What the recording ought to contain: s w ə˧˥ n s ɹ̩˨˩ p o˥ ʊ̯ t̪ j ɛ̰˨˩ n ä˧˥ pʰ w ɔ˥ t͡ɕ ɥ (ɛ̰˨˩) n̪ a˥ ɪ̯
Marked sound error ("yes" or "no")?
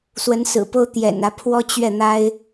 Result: yes